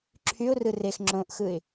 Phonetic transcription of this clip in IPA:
ǁʰ y ʊ̯ r ɯ r e x ŋ͡ǁ õ ʔ x ɯ ɪ̯

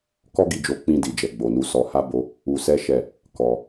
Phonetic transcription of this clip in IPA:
k ɔ˦ ɡ i˧ d͡ʒ o˧ k͡p ĩ˧ d i˨ d͡ʒ ɛ˨ ɡ͡b o˨ n u˨˦ s ɔ˧ h a˦ b o˦ | u˧ s ɛ˦ ʃ ɛ˦˨ | k ɔ˧

